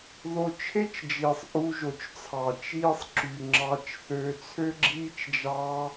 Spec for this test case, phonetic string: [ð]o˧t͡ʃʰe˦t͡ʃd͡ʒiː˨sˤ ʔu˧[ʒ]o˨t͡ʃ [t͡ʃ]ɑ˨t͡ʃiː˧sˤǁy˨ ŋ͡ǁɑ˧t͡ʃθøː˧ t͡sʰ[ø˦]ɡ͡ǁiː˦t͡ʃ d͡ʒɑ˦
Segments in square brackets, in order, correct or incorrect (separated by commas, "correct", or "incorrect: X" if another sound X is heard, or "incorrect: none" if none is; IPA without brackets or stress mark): correct, correct, incorrect: t͡sʰ, correct